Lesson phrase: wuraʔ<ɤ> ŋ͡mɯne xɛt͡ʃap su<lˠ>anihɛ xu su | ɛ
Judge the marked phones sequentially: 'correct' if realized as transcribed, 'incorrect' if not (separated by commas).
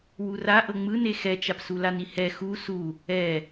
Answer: correct, incorrect